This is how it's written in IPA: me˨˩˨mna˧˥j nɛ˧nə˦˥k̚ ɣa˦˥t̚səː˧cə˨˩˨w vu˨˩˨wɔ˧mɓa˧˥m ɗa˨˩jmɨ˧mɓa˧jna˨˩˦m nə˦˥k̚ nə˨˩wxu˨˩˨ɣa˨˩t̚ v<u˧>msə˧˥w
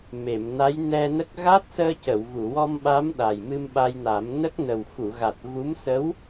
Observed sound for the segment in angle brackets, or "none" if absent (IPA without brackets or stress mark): u˧˥